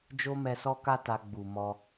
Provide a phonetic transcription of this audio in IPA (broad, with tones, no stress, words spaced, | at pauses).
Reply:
d͡ʒo˦mɛ˧sɔ˦ka˦ ta˧ɡ͡bu˨mɔ˧